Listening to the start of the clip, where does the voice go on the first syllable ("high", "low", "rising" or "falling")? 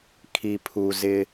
low